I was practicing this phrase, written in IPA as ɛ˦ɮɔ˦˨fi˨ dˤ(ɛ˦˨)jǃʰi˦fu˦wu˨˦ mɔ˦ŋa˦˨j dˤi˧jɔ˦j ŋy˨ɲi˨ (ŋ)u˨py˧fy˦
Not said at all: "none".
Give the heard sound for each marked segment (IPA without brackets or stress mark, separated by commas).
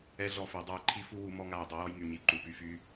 ɛ˦˨, ǃ